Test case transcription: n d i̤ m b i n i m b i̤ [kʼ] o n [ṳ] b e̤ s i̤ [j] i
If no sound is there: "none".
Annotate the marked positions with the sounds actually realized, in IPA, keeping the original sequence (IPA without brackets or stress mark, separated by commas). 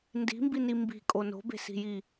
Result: kʼ, o̤, j